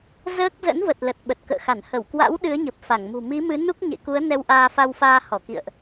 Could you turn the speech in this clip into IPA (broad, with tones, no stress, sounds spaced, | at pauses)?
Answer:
z əː˦˥ k̚ z ə̰˧˥ n v ə˨˩ t̚ l ə˨˩ t̚ ɓ ə˨˩ t̚ k ə̰ː˧˨ x a˧˩ n h ə˧˩ w k w a̰˧˥ w ɗ ɨ˨˦ ə̯ ɲ ə˨˩ p̚ f a˧˩ ŋ m ṳ˨˩ m i˨˦ m ɨ˨˦ n u˦˥ k̚ ɲ ḛ˧˨ k u˨˦ ə̯ n ɛ˧ w ʔ aː˧ f a˧ w f aː˧ h ɔ˧˩ k ḭ˧˨ ə̯ ʔ